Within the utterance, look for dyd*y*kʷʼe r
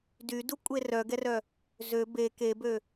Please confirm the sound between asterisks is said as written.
no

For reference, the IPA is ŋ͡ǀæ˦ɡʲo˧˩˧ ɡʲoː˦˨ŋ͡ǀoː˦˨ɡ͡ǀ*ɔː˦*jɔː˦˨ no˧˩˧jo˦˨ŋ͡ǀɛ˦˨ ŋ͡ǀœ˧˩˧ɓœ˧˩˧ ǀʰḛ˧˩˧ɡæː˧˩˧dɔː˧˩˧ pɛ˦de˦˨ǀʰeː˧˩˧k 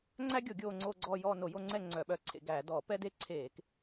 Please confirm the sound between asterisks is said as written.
no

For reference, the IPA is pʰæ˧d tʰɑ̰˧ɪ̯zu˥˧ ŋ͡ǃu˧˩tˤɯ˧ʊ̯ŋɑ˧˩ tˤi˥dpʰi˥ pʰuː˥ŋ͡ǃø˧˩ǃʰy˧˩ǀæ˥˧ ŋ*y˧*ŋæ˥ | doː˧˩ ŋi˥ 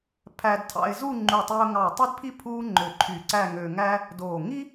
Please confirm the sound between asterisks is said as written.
no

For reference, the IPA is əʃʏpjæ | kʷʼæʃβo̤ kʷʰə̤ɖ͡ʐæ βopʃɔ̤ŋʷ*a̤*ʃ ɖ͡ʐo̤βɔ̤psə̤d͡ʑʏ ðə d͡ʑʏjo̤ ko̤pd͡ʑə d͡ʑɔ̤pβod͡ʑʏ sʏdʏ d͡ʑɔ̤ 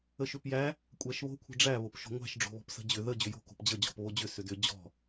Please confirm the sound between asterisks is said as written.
no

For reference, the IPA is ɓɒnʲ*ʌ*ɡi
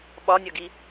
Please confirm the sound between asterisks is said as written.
yes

